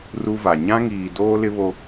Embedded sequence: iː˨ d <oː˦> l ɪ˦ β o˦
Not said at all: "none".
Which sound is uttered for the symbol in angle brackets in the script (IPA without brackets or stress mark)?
oː˦